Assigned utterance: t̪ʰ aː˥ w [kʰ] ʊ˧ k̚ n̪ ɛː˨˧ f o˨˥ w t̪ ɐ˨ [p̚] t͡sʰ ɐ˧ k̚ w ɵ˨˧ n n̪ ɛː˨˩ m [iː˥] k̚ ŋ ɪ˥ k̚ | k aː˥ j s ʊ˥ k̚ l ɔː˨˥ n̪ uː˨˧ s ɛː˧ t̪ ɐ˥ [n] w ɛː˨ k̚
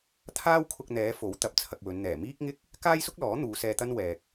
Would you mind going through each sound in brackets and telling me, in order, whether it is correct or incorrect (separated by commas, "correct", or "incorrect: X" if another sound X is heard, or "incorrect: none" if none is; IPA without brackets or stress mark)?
correct, correct, correct, correct